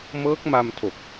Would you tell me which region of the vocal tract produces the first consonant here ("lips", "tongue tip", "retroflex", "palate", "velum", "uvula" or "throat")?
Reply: lips